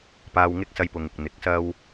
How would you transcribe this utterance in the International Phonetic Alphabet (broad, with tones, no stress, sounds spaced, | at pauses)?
p aː˧ w ŋ ɪ˥ k̚ s ɐ˧ j p ʊ˨ ŋ ɪ˨ k̚ n̪ ɪ˨˥ k̚ s ɐ˥ w